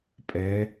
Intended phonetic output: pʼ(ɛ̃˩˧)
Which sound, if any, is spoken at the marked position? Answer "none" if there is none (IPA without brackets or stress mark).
ɛ˩˧